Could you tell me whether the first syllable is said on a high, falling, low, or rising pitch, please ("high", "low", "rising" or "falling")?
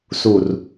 low